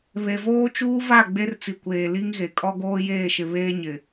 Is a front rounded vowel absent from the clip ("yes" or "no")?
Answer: yes